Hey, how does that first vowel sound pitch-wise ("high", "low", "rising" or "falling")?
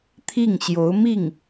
falling